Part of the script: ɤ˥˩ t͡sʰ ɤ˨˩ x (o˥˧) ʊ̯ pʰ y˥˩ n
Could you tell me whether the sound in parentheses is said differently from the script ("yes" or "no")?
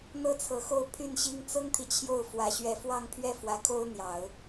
no